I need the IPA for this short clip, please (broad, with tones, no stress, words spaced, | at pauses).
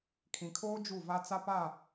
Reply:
kʰĩ˨kʰoː˦ d͡ʒu˦˨va˦ t͡sa˦pa˦˨